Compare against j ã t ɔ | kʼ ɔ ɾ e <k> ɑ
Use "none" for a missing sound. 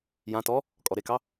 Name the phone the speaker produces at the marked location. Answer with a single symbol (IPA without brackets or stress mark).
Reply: k